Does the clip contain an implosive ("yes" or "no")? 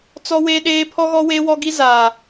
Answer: yes